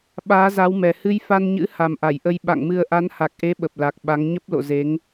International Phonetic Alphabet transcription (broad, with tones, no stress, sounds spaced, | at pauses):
ɓ aː˨˦ z a˨˦ w m ɛ˨˩ h ɨ˧ j f a˧ n ɲ ɨ̰˧˥ h a˨˩ m ʔ a˧˩ j ʔ ə˧ j ɓ a̰˧˨ ŋ m ɨ˧ ə̯ ʔ a˨˦ n h a˨˩ k̚ ʔ e˨˦ ɓ ə˨˩ p̚ l a˨˩ k̚ ɓ a˨˦ ŋ ɲ ə˦˥ p̚ l o̰˧˨ z e˨˦ ŋ